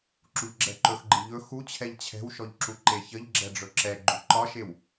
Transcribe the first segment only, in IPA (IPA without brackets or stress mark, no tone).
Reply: ǁ